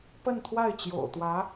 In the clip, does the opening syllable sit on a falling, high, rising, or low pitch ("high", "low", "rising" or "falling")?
falling